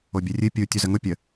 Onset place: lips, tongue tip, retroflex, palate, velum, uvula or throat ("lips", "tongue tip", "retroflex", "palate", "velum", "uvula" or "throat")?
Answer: lips